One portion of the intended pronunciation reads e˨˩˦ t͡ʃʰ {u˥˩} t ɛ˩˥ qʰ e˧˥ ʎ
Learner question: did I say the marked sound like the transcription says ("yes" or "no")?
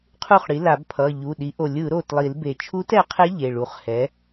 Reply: no